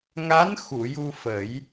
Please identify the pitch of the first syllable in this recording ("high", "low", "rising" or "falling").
rising